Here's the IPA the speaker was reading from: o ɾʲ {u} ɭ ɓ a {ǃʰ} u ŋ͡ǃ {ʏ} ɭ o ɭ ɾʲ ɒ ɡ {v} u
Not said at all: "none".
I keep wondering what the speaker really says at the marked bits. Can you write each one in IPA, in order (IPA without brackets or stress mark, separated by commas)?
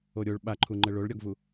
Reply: o, ǃʰ, ə, v